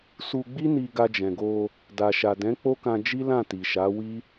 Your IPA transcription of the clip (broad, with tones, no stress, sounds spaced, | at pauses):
s u˧ ɡ͡b i˦ n i˧ ɡ a˧ d͡ʒ ɛ̃˨ ɡ o˧ | d a˨ ʃ a˨ d ɛ̃˨˦ k͡p o˦ k ã˧ d͡ʒ i˦ l ã˦˨ t i˨ ʃ a˨˦ w i˦